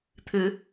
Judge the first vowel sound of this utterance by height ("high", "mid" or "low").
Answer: high